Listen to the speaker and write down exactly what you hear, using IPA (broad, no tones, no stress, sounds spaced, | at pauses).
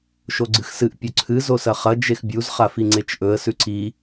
ʃ o ɡ͡ǀ ɨ x s ɨ ʔ pʲ ɵ ǀʰ ɨ z o s ɐ χ ɐ d͡ʒ e x bʲ u z χ a f i ŋ͡ǀ e t͡ʃ ʔ ɵ ə̯ s ʉ ǀ i